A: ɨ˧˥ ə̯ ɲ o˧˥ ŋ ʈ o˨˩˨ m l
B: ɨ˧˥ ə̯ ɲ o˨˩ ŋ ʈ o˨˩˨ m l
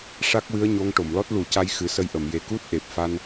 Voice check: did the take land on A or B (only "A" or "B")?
A